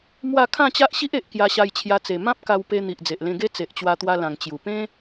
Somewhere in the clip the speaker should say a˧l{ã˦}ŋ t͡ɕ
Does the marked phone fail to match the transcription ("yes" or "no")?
yes